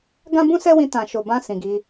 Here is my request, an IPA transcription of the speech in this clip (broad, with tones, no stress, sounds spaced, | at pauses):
ɡ ã˦ b ũ˦ s ɛ˦ w ĩ˧ t ã˨ ʃ o˨ b ã˧ s ĩ˨ ɡ i˨˦